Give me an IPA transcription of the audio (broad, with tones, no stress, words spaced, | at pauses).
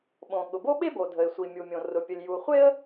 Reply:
ɓõ˩ ɠʊ˩bo˥ɓe˥bo˩ dʱə˩ɪ̯sʷi˩mʲu˩mʲõ˩ rʊ˩pʲə˩lʲ ju˩χʷe˥ə̯